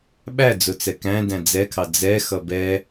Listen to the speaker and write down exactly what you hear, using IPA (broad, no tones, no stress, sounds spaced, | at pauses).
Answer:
ɓ æ d͡z ʊ t͡s ɛ k æ̃ d æ̃ d͡z ɛ kʰ ɑ d͡z ɛ x ʌ b ɛ